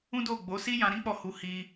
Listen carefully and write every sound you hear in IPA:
ũ˦ d o˦˨ ɡ͡b o˨˦ s i˦ j ã˧ ɾ ĩ˦ k͡p ɔ˦˨ h u˨˦ h i˧

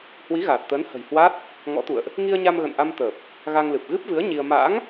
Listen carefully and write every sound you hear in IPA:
h w i˨˦ ɣ aː˨˩ t̚ t̪ əː˨˦ n h ə̤˨˩ j h w a˦˥ t̚ | ŋ ɔ̰˧˥ t̪ ṵ˧˨ ə̯ ʔ | ŋ i˧ ə̯ ɲ a˧ m ɣ ə̰˧˨ n ʔ a˧ m t̪ əː˨˩ p̚ | ɣ a˧ ŋ l ɨ˨˩ p̚ ɣ ɨ˦˥ p̚ v ɨ˨˦ ə̯ ɲ i˧ ə̯ m a̰ː˧˥ ŋ

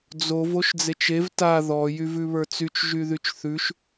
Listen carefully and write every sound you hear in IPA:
d͡z o v o ʃ d͡z e t͡ʃ e v t a ð ɔ j y v ʉ β ə˞ t͡s y t͡ʃ ʒ y ð y t͡ʃ θ ʉ ʃ

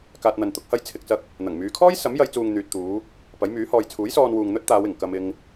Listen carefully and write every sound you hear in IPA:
k aː˧ t̚ n̪ ɐ˨ n t̪ ʊ˨˥ k̚ h ɐ˥ j t͡sʰ ɪ˨ k̚ t͡s ɐ˧ k̚ | n̪ ɐ˨˩ ŋ m yː˨˧ kʰ ɔː˥ j s ɐ˨˥ m j ɐ˨˧ j t͡s uː˨ ŋ n̪ yː˨ t̚ t̪ uː˨˧ | p ɐ˨˥ j m yː˨˥ h ɔː˧ j t͡sʰ uː˨˥ j s ɔː˧ n w uː˨ ŋ n̪ ɵ˥ t̚ t̪ aː˨˧ w ɪ˨˩ ŋ k ɐ˧ m ɪ˧ ŋ

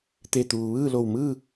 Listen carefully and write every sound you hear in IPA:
t̪ e˧˩ t̪ uː˩ ʋ ɯː˥˨ l o˧˩ w m ɯː˥˨

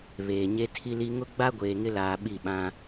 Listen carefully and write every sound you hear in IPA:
β eː˨ ɲ e˦ tʰ i˦ l i˦ ŋ ʊ˦ ɡ͡b a˦ ɡʷ eː˨ ŋ ɪ˦ l aː˨ ɓ i˦˨ ɓ ã˦

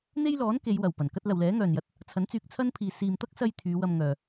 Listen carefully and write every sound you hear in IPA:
n̪ e˥ j l ɔː˨˥ n k e˨˧ j w ɐ˨˩ w p ɐ˨˩ n k ɐ˥ t̚ l ɐ˨ w l ɛː˨˥ ŋ œː˨ n j ɐ˧ t̚ | t͡sʰ ɐ˨˥ n t͡s yː˧ k̚ t͡sʰ ɐ˥ n pʰ iː˨ s iː˧ m t̪ ɐ˥ k̚ s ɐ˧ j t̪ʰ yː˨˧ w ɐ˧ m ŋ œː˨

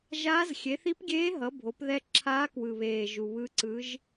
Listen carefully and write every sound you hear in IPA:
ʒ aː˧˥ z xʲ e˩˥ θ i˧˥ p ɡʲ eː˧˥ ɦ ʌ˩˥ bʱ o˩˥ p ð ɛ˧˥ ǁʰ aː˧˥ k w ɯ˨˩ β eː˨˩ ʒ u˨˩ β ɯ˧˥ ǀ ɯ˧˥ ʒ

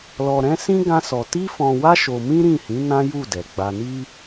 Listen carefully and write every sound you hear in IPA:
l ɔ˧ ɾ ɛ̃˦ s ĩ˦ ɡ ã˦ s ɔ˧ t i˦ f ɔ̃˧ w a˦ ʃ o˧ m ĩ˦ ɾ ĩ˦˨ h ĩ˨˦ n ã˦ j u˦˨ d ɛ˨ ɡ͡b a˨ n i˧

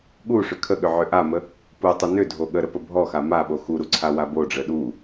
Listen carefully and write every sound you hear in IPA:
ɠ u ʂ ʏ kʰ ə ɠ ʏ ʕ ʏ ʔ a m ə | p u tˤ ʏ n ʏ dʱ o ɠ ə ɾ ə p ə bʱ ɔ x a m a ɓ o x u ɾ u ǀʰ a w a b o ɖ͡ʐ ə ɗ u

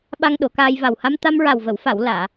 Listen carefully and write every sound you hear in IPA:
ɓ a˧ ŋ ɗ o˨˩˦ k aː˧ j v a˨˩ w h a˧ m t̪ a˧ m ɹ a˨˩ w v ə˨˩˨ w f a˨˩˨ w l aː˨˩˨

